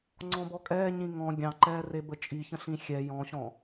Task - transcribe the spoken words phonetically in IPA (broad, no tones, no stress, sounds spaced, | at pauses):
ŋ͡ǀ ɔ̃ b ɔ kʼ ɛː ɲ ĩ ŋ ɔ̃ ɡʲ ɑ̃ ǃ ɛː r e b ə t͡ʃʼ i ç ə̃ ɬ ĩ xʲ ɛ j ɔ̃ ɕ ɔ̃